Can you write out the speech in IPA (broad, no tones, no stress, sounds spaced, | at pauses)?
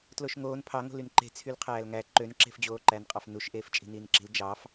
t l o ʃ ŋ oː n pʰ ɑ ŋ o̤ l y n ǃ e̤ t͡sʰ y l qʰ æː l ŋ æ ǃ ø n ǁ e̤ f d͡ʑ oː ǃ æ n qʼ ɑ f n u ʃ ʔ eː f t͡ʃʼ i̤ n iː n ǁ i̤ l d͡ʒ ɑ f